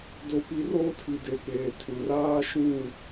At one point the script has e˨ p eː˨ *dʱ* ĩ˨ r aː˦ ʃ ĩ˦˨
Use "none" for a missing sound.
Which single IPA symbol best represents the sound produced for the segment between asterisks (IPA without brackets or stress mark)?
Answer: tʰ